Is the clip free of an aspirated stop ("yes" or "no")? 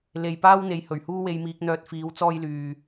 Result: yes